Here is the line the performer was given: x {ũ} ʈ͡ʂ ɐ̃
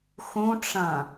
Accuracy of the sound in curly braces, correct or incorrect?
correct